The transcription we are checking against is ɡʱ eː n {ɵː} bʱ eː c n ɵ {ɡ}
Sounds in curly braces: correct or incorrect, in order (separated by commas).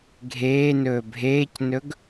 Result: correct, correct